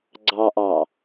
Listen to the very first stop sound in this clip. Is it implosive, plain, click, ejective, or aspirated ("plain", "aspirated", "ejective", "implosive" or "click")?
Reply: click